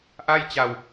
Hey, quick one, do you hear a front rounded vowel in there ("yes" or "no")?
no